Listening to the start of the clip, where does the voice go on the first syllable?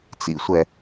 low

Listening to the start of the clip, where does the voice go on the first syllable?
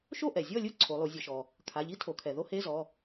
falling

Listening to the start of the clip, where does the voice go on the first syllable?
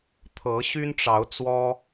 rising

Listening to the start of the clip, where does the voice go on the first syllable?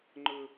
high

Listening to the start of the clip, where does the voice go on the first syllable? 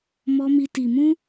high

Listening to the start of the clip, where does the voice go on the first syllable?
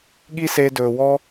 high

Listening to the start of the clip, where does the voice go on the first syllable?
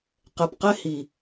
low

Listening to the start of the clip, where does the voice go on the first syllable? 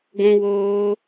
high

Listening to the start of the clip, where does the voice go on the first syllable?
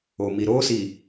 low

